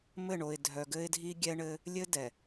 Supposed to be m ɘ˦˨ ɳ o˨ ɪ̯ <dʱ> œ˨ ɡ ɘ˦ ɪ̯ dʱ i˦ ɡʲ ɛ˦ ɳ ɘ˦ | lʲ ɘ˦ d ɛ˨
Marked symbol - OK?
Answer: yes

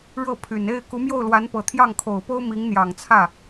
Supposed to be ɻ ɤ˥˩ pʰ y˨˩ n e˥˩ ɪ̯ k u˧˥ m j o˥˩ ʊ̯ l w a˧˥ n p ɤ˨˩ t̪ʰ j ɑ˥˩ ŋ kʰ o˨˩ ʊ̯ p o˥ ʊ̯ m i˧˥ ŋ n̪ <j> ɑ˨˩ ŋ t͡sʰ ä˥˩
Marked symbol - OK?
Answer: yes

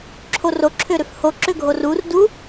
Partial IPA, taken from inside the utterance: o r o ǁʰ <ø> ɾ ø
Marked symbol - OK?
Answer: yes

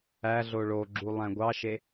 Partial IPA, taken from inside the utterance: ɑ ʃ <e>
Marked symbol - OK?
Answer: yes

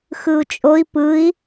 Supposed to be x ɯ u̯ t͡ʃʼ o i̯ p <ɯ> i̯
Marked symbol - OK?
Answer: yes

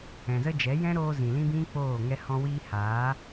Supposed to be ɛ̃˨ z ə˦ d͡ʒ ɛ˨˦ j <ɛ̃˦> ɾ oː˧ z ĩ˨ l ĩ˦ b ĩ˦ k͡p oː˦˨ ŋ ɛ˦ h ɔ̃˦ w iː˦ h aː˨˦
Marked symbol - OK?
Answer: yes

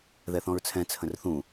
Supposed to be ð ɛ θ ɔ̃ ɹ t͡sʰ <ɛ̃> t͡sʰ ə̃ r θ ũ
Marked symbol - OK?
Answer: yes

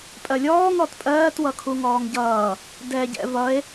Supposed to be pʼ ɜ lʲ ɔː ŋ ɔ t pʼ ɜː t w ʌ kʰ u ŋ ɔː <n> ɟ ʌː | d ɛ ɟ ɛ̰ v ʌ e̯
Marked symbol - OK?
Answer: no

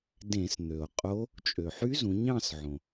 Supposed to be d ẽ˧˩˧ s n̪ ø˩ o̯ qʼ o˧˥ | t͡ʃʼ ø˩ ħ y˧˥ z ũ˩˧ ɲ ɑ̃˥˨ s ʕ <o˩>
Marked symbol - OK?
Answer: no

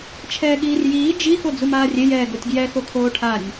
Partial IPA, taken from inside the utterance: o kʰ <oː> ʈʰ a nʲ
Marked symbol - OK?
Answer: yes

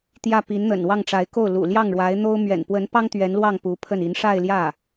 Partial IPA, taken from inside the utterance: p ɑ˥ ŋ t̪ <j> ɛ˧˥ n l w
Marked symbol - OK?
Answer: no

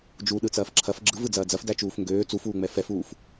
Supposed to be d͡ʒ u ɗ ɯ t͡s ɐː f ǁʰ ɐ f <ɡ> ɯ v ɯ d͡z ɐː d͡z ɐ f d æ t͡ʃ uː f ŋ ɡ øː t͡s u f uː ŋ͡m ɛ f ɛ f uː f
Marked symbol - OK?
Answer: no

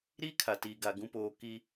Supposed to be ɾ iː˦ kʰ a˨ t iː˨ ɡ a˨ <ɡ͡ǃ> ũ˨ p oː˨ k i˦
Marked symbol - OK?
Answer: no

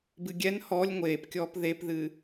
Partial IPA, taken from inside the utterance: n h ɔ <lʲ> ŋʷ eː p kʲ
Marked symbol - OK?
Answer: yes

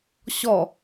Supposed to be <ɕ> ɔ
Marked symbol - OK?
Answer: yes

